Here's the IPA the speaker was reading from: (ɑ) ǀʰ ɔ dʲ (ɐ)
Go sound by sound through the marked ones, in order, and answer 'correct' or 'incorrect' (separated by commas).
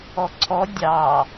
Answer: incorrect, incorrect